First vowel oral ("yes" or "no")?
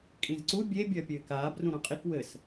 no